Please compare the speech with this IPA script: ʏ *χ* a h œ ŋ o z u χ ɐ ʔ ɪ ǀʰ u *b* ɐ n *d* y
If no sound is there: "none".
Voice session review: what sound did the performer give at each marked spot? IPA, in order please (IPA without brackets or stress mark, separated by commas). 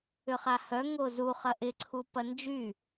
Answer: χ, p, d͡ʒ